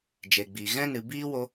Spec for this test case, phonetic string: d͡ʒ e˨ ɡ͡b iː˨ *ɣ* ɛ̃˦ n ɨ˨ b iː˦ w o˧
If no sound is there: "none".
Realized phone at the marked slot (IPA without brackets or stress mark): ɣ